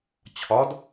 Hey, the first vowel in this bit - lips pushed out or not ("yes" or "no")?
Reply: yes